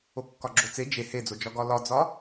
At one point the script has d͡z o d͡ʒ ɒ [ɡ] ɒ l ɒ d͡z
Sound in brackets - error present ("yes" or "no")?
no